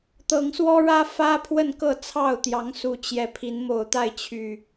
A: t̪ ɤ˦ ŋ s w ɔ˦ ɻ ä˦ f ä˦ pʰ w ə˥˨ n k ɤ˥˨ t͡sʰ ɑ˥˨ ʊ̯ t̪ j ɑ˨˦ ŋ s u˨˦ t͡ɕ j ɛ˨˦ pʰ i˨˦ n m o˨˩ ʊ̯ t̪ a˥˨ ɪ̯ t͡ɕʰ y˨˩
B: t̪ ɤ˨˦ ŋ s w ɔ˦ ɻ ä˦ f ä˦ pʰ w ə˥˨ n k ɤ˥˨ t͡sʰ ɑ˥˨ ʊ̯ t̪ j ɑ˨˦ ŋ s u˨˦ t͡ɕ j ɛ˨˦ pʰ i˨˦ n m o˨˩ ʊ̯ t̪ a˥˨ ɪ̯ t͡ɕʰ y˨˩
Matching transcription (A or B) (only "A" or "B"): B